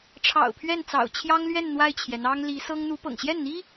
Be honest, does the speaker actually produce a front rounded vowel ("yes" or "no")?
no